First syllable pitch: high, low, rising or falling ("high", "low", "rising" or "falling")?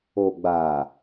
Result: low